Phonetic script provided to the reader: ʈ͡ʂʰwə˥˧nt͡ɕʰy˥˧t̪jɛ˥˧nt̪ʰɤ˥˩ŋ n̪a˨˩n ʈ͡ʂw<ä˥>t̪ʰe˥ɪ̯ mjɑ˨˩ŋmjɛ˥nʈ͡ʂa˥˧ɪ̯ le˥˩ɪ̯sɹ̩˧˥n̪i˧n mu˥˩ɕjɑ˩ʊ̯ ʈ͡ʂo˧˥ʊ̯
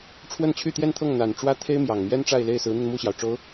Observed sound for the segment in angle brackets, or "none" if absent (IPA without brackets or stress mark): ä˥